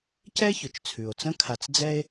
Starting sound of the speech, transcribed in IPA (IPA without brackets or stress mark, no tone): c